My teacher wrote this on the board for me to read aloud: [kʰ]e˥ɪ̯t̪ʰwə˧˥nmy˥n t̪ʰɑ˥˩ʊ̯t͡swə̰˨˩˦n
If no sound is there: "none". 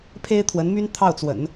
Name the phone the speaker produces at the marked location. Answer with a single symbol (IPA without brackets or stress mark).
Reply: pʰ